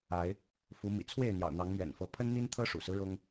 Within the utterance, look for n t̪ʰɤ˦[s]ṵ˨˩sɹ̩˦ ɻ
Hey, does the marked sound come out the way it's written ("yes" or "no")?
no